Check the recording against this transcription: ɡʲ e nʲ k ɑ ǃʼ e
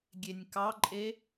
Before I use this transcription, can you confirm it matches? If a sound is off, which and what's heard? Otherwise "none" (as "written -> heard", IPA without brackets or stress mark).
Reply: none